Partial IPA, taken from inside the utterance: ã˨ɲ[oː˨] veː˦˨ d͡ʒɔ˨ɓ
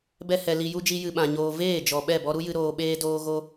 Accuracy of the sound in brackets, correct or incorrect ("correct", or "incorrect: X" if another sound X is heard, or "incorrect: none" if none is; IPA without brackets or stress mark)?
incorrect: oː˧